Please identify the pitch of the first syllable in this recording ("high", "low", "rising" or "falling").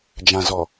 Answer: low